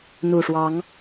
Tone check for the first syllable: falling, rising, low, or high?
low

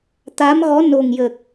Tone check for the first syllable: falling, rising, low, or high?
rising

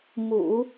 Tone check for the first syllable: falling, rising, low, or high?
low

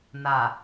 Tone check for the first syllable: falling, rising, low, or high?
low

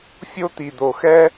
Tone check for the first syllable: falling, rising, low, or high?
high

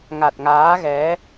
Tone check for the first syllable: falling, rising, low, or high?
low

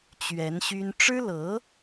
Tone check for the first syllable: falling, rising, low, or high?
rising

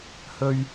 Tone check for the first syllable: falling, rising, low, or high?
high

